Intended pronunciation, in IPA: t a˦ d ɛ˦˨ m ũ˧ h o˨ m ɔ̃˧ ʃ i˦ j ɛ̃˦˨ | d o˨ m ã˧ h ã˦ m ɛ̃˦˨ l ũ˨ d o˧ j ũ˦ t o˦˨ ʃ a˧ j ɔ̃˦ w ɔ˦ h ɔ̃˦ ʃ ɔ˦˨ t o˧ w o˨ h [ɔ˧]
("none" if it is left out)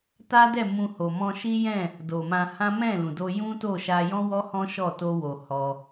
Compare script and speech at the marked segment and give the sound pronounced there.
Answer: ɔ˧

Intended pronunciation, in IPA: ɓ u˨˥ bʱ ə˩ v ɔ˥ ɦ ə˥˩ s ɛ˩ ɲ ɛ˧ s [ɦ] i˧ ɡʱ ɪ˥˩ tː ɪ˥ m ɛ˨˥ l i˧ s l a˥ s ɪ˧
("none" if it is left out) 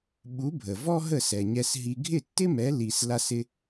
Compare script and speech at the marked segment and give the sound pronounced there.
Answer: ɦ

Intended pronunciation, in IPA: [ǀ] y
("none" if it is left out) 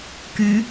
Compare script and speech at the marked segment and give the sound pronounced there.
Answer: k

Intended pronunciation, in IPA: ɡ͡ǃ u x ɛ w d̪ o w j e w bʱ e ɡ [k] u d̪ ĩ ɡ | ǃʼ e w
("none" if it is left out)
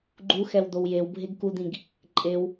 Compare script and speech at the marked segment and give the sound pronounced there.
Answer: k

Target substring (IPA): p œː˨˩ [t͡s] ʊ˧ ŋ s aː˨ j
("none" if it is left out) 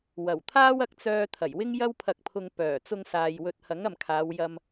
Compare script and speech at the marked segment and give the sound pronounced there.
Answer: t͡s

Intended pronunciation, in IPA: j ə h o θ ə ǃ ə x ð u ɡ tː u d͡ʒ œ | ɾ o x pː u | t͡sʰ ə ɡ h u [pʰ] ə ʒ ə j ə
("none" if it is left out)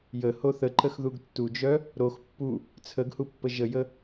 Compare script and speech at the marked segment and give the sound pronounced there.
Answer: pː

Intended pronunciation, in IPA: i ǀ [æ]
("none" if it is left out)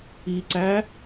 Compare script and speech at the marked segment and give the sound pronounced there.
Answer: æ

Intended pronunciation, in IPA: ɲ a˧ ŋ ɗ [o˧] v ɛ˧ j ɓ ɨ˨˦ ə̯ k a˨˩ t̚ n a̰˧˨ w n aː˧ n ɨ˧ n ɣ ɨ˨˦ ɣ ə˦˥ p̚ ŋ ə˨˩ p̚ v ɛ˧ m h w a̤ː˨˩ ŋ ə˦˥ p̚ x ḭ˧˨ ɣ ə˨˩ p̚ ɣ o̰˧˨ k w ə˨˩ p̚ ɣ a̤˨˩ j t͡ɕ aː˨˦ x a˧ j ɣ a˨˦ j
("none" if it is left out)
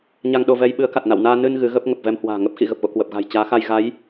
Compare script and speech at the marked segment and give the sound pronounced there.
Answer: o˧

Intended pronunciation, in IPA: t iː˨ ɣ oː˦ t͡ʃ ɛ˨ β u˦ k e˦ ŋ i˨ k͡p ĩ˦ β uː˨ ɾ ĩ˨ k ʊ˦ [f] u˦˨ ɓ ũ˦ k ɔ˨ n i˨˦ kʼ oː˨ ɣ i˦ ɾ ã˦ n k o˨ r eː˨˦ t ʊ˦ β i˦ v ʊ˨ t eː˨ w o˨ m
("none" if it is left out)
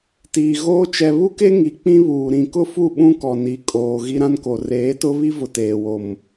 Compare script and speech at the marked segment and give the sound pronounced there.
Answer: f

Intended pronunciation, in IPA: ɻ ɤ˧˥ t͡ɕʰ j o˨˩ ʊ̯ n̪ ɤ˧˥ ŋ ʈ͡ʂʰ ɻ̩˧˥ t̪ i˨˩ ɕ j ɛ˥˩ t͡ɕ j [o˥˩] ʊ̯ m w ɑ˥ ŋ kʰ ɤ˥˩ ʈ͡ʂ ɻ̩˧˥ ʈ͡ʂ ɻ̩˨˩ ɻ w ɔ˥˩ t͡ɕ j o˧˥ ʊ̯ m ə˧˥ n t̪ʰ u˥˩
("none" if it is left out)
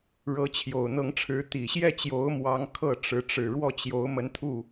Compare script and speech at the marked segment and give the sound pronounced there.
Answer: o˧˥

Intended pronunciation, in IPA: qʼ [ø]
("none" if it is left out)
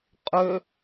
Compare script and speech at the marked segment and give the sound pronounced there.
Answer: ø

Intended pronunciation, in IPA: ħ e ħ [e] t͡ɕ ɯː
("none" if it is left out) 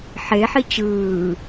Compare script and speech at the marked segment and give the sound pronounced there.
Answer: i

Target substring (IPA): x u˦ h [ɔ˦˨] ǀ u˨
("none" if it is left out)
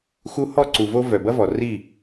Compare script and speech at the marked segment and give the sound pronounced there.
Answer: ɔ˦˨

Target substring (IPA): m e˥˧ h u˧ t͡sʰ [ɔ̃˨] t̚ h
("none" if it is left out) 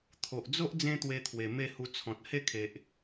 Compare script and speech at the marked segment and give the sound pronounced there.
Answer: ɔ̃˨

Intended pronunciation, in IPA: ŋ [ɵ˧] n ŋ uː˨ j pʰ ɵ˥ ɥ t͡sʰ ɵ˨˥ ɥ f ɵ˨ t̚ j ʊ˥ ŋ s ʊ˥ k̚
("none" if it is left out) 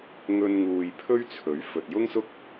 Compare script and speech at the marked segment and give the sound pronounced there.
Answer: ɵ˧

